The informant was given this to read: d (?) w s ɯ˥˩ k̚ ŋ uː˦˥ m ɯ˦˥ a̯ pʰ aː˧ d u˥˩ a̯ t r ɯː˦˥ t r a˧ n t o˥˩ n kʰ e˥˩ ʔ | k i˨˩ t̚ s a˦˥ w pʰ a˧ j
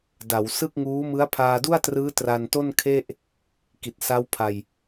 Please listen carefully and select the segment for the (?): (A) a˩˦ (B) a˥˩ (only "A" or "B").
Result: A